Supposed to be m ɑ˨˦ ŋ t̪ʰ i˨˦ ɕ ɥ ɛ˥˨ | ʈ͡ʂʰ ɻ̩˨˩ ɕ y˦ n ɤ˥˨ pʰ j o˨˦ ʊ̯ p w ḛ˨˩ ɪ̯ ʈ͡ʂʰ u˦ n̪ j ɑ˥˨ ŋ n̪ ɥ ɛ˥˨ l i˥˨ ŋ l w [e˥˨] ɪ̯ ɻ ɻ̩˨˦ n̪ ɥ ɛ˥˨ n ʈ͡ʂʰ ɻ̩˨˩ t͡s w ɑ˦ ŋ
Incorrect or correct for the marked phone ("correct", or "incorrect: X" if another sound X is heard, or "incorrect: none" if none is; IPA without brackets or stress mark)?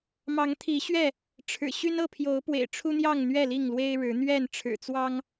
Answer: incorrect: e˦